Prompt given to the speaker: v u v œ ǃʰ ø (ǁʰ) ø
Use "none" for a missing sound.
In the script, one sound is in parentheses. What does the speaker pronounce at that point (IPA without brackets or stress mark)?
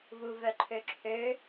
ǁʰ